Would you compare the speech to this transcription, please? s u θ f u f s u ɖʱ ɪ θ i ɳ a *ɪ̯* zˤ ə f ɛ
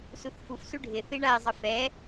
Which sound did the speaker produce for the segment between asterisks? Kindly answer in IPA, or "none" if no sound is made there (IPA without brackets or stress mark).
ɪ̯